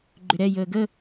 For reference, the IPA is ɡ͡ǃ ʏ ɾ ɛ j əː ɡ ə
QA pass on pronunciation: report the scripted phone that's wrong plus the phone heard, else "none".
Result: none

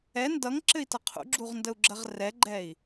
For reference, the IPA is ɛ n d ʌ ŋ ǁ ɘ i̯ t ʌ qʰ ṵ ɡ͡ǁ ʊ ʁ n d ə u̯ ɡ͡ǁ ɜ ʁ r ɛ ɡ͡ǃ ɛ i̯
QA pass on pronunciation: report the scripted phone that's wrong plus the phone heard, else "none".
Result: ʊ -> u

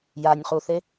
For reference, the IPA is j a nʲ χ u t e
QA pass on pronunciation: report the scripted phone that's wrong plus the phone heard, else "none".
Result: t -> θ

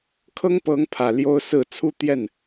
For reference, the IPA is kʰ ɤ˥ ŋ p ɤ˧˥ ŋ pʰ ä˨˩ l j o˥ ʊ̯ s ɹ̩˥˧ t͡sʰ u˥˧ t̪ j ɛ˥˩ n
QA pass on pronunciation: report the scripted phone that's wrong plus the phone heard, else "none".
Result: none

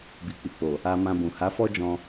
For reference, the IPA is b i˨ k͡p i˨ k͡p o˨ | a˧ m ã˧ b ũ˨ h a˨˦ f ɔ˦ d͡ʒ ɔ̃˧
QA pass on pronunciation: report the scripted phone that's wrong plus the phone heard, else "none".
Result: none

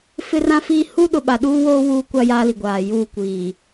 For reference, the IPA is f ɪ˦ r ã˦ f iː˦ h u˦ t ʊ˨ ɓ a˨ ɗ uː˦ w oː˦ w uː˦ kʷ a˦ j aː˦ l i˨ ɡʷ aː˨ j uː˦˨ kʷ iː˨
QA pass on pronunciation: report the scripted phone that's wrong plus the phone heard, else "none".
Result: t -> ɗ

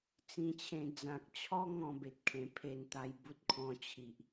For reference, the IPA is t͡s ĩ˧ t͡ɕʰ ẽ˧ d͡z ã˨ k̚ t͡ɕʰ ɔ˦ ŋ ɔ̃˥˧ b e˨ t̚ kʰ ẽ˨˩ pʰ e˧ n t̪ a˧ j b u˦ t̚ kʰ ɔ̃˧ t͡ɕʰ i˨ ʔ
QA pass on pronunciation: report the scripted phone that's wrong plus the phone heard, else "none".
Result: none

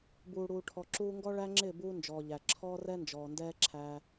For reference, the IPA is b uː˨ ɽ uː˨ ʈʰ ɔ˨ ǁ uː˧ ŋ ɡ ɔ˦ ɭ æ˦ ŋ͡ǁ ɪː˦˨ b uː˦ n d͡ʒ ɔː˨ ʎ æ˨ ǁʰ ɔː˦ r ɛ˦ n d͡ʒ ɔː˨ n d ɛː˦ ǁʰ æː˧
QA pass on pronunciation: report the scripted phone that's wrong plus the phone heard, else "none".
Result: none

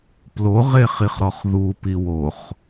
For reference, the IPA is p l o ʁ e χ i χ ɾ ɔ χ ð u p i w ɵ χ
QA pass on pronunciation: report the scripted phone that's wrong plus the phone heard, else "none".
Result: ɵ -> o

